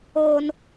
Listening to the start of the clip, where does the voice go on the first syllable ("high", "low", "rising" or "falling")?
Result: high